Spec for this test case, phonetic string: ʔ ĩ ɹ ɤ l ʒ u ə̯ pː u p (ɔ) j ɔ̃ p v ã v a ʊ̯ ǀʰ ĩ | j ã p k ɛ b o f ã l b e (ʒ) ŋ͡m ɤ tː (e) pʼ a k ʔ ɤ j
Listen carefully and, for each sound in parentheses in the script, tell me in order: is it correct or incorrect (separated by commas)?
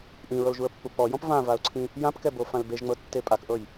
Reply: correct, correct, correct